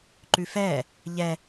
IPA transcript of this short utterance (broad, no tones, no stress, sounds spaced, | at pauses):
ǃ ʉ f ɛː | ʎ ɛ